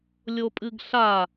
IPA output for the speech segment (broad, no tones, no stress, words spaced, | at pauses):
lʲopʼɨɡɬa